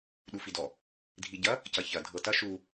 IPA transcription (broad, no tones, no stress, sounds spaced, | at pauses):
ɗ u f i d ɔ | dʱ i ɟ ɐ | c ɐ ç ɐ dʱ ɤ t ɐ ʃ u